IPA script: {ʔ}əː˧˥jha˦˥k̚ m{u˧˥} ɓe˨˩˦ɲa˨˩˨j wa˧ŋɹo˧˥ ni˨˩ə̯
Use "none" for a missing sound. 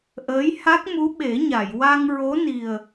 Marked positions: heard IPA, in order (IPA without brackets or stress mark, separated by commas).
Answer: ʔ, u˧˥